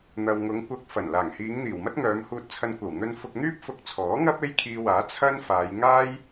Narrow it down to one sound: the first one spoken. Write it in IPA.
n̪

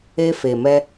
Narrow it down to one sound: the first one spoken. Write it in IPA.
e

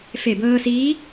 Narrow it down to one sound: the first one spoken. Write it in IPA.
f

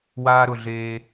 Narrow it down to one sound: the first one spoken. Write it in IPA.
w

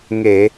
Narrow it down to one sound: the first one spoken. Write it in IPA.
ŋ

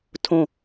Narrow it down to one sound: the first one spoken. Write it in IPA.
tʰ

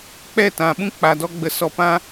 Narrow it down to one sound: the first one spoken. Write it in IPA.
k͡p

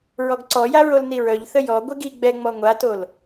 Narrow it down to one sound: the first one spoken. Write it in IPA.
ɹ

